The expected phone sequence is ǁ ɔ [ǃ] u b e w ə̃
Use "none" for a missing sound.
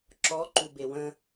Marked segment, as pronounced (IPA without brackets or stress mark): ǃ